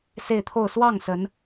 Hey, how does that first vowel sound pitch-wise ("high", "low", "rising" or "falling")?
falling